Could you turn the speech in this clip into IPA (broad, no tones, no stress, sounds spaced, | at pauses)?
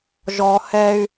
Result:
ʒ ɔ h ɛ y̯